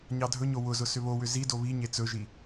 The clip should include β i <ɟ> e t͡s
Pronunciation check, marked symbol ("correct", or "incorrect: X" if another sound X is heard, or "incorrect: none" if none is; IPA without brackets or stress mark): incorrect: ɲ